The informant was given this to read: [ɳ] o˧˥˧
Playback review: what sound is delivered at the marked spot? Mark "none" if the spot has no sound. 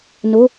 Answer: n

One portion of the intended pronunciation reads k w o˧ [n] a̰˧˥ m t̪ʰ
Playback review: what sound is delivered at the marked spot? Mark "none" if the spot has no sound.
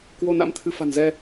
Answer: n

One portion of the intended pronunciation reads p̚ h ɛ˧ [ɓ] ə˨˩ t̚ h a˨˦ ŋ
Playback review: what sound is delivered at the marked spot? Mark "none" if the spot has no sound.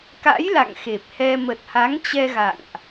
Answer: m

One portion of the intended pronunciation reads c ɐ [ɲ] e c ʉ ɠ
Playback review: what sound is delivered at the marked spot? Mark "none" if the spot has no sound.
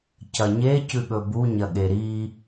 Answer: ɲ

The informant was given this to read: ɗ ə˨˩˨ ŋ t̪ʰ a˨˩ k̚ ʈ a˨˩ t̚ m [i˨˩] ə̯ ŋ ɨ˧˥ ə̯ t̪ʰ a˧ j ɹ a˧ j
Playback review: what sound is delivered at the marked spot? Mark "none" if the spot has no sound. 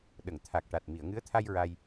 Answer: i˨˩˨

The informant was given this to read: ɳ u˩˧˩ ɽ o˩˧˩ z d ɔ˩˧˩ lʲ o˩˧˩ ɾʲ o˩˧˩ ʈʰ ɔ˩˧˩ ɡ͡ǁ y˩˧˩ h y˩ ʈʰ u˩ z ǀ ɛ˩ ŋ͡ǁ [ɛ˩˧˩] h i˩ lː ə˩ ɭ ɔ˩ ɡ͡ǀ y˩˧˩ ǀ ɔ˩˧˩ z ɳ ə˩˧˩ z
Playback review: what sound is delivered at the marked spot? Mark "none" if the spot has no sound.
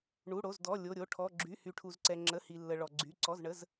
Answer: ə˩˧˩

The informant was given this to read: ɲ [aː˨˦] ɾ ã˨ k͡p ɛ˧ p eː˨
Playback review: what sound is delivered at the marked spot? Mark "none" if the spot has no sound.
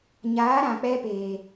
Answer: aː˨˦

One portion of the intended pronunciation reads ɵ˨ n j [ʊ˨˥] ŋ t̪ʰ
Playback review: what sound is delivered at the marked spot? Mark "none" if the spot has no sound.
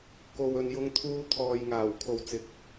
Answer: ʊ˧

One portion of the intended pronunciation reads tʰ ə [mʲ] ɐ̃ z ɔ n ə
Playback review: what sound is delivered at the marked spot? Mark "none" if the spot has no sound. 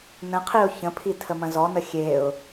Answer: m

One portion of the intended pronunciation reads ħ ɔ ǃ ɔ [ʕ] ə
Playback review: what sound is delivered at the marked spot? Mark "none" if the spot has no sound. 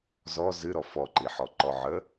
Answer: ʕ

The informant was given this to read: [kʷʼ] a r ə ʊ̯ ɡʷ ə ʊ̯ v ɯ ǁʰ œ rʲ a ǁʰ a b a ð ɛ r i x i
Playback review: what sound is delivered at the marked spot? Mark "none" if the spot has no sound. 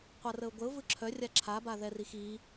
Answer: qʷ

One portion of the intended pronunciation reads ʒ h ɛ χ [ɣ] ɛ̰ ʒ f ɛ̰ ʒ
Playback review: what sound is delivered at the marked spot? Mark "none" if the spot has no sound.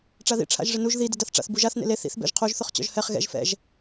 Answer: ɣ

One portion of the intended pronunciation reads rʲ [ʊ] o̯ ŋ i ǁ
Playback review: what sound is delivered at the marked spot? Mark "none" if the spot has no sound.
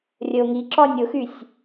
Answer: ə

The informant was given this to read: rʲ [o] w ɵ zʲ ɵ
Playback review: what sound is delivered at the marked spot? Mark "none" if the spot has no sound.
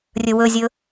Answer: ɵ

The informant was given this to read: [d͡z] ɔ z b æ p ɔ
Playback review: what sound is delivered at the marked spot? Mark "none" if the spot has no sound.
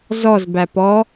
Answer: z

